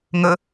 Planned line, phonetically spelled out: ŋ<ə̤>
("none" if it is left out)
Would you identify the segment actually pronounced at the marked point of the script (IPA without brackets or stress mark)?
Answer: ə